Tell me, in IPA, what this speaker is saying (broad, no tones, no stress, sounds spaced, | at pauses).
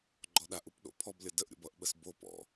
ɡ͡ǃ ɔ ɗ a ʔ u p ɗ o̰ pʰ ɔ b lʲ ʌ d ə ʔ ɾʲ o̰ b ʌ ʔ ɓ ə s b o p ɔ̰